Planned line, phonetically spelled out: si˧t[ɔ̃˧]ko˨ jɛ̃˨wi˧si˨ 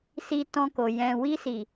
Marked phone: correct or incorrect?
correct